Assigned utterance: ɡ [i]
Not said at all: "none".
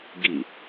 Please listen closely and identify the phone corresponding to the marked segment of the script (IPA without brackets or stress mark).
i